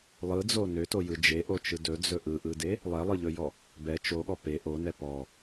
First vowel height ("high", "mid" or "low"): high